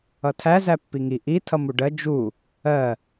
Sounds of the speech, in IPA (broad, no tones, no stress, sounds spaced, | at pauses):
ʌ tʰ æ z æ pː i ŋ i ʔ i tʰ ʌ m u ɖ ɜ d͡ʒ u | ɜ